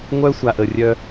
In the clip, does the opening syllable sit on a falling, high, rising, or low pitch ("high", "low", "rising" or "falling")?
high